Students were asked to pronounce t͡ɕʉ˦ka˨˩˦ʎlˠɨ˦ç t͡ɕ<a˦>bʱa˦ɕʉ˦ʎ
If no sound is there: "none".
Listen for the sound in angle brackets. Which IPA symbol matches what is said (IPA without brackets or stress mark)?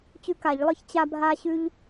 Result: a˦